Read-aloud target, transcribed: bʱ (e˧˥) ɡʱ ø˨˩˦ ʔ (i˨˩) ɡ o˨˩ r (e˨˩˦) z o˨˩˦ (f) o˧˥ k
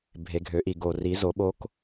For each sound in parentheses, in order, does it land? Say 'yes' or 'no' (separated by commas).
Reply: no, yes, no, no